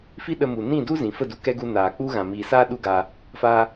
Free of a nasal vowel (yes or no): no